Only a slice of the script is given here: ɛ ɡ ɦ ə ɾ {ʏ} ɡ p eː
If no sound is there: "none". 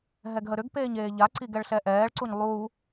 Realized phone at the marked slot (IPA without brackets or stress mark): ʏ